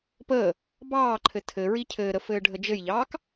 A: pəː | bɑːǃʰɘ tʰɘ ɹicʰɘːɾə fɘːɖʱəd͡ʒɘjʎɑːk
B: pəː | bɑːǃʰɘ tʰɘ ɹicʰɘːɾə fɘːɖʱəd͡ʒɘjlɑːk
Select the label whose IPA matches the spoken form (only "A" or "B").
A